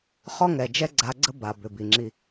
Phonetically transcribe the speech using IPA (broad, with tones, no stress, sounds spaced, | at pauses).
χ ɔ˦ ŋ ɛ˨ d͡ʒ ɛ˦ ɡ͡ǀ a˨˦ ɡ͡ǀ ə˦ b a˨ b ʏ˨ b i˨ ŋ͡ǁ i˦